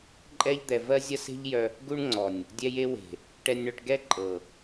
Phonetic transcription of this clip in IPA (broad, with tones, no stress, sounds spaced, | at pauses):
ǃʼ ɛ˦ ʎ d̪ ɛ˧ v ɜ˦ zʲ ɐ˦ s e̤˦ ʎ j œ˧ | ɡ u˦ ɳ ŋ͡ǀ ɔ˨ nʲ | dʲ ɛ˧ j e˧ w e̤˨ | ʈ ɛ˧ nʲ ɳ œ˧ ʈ ɡ ɛ˦ ǃʼ ɤ˨